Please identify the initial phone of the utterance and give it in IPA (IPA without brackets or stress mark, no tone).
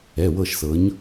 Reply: ɛ